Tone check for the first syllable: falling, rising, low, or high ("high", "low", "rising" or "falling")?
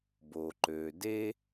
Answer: low